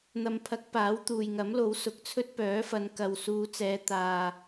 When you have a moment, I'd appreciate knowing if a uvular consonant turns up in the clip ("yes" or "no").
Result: no